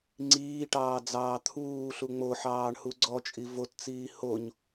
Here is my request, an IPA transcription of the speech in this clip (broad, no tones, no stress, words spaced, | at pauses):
ŋ͡ǀiːʈɑː d͡zɑːt̪ʰuːɬu ŋ͡moħɑːɳ huɡ͡ǀɔt͡ʃʼi vott͡siː hoɲ